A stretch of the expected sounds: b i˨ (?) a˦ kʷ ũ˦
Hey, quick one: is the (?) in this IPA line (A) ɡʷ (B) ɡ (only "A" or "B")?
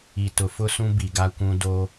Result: B